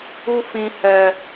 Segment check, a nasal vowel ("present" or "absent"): present